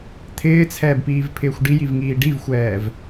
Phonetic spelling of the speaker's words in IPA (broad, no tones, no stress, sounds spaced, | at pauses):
t̪ʰ ɪː t͡sʰ ɛː b p iː v pʰ ɪː xʷ ɖ i j i v ŋ iː ɖ i v xʷ ɛː v